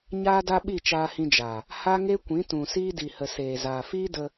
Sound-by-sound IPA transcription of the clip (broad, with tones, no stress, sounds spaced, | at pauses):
ɲ aː˧ d a˧ ɓ i˦˨ t͡ʃ aː˧ h ĩ˧ d͡ʒ aː˨ | h a˦ ŋ e˦ kʷ ĩ˨˦ t ũ˨ s iː˧ d i˨ h ə˨ s eː˨ z aː˨ f iː˦ d ə˧